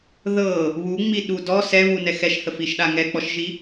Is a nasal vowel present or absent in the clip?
absent